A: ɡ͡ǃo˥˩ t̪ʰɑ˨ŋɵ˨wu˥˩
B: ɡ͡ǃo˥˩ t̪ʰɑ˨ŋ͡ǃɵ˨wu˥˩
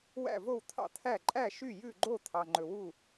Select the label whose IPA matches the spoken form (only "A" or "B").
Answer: B